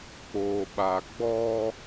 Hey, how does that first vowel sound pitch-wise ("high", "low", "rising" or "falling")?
low